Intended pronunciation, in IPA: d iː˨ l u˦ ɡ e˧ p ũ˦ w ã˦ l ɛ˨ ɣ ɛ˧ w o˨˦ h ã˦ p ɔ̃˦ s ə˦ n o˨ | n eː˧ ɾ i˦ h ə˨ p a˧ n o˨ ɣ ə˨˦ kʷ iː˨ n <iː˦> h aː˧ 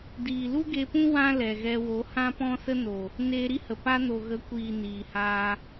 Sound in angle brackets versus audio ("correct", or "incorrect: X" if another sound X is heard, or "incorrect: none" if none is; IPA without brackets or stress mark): incorrect: iː˨